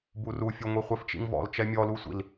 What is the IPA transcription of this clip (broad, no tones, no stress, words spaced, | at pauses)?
burufʲuŋʷi χʷɛft͡ʃḭŋvɔ̰l t͡ʃɛmʲɔlusʷḭl